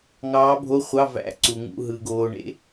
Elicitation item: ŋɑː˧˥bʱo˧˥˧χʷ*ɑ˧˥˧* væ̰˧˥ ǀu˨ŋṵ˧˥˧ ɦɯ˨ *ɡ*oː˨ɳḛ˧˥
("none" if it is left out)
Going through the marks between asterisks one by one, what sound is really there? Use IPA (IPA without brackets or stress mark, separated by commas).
ɑ˧˥˧, ɡ